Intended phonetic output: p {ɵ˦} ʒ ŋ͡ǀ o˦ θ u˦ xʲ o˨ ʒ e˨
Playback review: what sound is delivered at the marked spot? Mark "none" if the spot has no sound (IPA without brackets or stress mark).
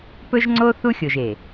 ɵ˦